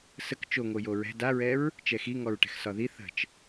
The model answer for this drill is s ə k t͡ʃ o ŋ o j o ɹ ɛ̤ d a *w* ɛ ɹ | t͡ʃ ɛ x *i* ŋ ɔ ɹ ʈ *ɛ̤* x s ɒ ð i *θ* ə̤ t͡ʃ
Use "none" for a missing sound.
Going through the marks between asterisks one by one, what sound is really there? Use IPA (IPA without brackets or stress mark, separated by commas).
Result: ɹ, i, ɛ̤, θ